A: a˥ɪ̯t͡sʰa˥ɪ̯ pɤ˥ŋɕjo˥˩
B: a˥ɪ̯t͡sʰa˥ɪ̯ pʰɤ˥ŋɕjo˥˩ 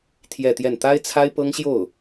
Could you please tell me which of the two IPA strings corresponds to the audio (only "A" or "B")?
A